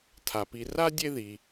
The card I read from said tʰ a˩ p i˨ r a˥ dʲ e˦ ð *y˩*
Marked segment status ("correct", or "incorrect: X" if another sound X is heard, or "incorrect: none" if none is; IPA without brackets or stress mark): incorrect: i˩